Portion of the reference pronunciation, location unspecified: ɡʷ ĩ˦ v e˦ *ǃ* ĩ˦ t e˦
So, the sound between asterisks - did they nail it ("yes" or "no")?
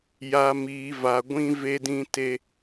no